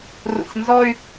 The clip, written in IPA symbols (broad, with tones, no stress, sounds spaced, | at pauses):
r ṵ˨ sʲ n z ɔ˦ y̯